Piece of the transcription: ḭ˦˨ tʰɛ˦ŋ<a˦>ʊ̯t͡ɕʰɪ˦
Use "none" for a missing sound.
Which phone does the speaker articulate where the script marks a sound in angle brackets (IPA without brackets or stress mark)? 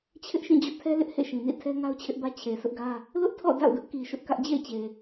a˦